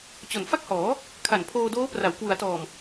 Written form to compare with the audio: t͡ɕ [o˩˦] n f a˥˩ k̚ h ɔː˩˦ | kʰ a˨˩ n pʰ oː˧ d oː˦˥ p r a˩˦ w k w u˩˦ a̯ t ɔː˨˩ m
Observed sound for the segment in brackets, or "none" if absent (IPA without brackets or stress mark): o˨˩